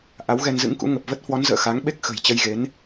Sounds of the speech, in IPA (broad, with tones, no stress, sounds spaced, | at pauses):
ʔ a˨˦ w ɣ ɛ˧ n z ɨ̰˧˥ ŋ k ṵ˧˥ ŋ ə˨˩ p̚ v ə˦˥ t̚ h w ɔ˨˦ n z ə̰ː˧˨ x a˨˦ ŋ ɓ e˦˥ k̚ x ə̤˨˩ j t͡ɕ ə˧ j ɣ e˨˦ n